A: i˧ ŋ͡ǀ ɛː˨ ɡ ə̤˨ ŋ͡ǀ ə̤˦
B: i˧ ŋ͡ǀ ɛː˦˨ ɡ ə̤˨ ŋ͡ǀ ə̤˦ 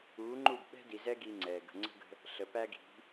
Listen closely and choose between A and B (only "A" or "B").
A